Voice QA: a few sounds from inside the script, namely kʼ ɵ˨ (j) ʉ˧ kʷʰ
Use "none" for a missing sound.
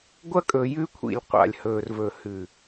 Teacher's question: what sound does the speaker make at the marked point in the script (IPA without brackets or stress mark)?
j